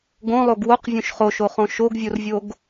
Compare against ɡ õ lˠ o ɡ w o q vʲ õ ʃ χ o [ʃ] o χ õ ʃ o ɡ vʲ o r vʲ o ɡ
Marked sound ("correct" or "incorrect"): correct